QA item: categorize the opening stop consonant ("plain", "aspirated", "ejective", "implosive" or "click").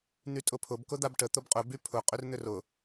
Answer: ejective